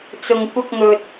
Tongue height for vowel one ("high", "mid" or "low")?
high